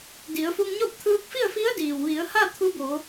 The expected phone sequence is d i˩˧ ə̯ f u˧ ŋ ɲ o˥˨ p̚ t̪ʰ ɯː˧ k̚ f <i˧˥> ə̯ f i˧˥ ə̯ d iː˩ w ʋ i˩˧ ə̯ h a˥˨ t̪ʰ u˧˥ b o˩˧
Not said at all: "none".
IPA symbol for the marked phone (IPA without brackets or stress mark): i˥˨